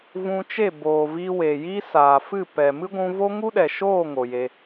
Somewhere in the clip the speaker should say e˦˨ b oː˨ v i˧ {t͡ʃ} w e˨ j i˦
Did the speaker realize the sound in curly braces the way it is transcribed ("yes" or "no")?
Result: no